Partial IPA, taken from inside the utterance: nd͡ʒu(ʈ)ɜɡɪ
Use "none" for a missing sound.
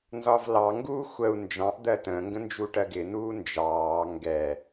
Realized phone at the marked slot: ʈ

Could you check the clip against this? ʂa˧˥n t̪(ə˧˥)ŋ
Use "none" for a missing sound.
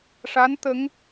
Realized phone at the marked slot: ə˧˥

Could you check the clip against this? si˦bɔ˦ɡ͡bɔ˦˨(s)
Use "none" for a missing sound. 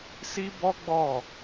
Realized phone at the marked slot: none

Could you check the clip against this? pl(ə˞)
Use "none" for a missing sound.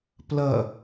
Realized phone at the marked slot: ɐ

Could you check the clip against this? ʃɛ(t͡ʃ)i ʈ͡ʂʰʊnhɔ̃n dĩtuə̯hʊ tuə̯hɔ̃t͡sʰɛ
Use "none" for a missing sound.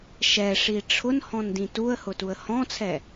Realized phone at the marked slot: ʂ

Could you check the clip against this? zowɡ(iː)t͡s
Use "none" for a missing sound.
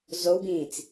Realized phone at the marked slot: ĩː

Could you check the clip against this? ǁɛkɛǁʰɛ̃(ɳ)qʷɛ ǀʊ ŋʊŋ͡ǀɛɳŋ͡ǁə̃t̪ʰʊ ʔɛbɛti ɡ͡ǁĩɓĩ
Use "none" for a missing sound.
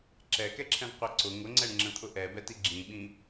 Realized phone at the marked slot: ɳ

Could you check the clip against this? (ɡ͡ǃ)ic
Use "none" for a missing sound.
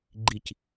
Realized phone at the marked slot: ɡ͡ǃ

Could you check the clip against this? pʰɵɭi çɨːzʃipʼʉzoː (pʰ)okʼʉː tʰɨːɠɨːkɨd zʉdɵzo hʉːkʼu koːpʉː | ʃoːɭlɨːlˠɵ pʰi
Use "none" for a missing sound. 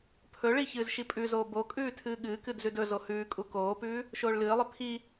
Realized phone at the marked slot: b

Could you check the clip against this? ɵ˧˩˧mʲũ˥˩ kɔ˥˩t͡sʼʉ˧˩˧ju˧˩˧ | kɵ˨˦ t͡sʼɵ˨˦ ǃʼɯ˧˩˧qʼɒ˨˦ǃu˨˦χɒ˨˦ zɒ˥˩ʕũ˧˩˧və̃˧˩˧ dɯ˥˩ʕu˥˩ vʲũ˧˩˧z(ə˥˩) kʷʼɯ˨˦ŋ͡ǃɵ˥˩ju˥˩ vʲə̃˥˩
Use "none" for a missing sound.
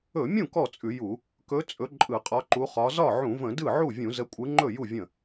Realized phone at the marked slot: ə˨˦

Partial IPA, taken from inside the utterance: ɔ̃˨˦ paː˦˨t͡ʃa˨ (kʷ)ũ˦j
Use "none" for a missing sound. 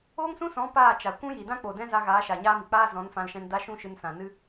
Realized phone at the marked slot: kʷ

